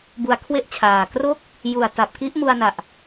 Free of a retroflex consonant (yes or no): yes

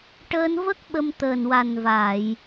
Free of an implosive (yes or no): no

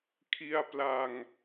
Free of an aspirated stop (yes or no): no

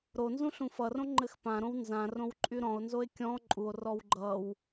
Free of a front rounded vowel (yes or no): no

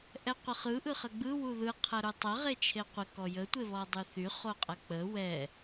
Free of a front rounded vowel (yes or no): no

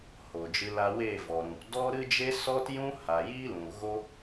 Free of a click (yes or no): yes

